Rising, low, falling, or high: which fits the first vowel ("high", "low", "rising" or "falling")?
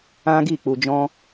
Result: high